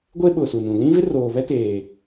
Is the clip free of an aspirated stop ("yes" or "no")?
yes